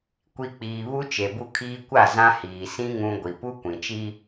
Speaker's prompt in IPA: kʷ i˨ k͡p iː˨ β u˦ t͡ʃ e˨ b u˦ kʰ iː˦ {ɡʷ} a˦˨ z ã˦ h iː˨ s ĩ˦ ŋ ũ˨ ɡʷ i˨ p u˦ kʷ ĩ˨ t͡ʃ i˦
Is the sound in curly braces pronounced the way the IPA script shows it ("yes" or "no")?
no